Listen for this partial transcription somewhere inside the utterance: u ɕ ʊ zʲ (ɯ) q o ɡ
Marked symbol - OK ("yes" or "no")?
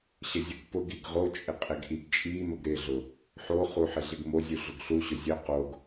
no